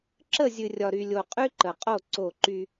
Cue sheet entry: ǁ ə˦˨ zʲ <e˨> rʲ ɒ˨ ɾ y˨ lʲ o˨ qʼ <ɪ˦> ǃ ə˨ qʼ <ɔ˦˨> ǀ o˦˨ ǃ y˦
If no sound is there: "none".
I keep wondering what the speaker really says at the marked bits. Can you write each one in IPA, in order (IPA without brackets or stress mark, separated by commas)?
ɨ˨, y˦, o˦˨